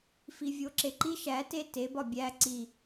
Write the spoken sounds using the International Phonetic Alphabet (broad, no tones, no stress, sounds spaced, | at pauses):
f i vʲ o ǁ e ǃ i ʃ æ t e t e b ɒ bʲ æ ǀ i